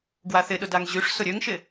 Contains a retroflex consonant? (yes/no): yes